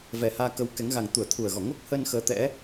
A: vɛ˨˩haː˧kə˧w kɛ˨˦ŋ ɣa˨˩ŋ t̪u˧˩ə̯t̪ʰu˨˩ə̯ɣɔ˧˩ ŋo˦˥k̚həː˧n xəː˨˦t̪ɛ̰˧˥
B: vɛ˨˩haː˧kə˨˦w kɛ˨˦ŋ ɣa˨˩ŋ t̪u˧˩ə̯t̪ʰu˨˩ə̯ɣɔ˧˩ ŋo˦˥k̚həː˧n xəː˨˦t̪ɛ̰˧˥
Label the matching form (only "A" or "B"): B